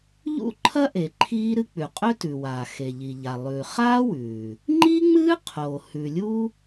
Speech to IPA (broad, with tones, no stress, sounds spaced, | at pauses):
ʎ ṵ˥ ǃʰ ɐ˥ ʔ e˩ ǃʰ iː˥ ɾ ɨ˥ k͡p ʉ˩ qʼ ɵ˥ t ʉ˩ w aː˩ x e˩ ʎ i˩ ʎ a˩ lˠ ʉː˩ χ aː˥ w ʉː˩ | ŋ͡ǃ i˥ ŋ͡m ɨː˥ qʰ o˩ h ʉ˩ lʲ u˥